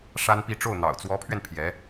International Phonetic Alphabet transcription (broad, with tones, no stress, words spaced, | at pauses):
ʂa˥npi˥˧ ʈ͡ʂo˥˩ʊ̯n̪ɑ̰˨˩ʊ̯ t͡swɔ˧˥pʰɥɛ˧n pʰjɛ˧˥